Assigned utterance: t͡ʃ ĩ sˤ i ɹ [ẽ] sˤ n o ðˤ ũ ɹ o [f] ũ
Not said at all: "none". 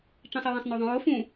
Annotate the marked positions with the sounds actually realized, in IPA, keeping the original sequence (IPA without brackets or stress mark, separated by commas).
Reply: ĩ, f